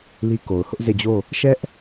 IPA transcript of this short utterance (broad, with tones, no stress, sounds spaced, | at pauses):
l i˦ k o˨ ʊ̯ h ʊ˦ ʔ z e˦˨ d͡ʑ o˦˨ | ʃ ɛ˦ ʔ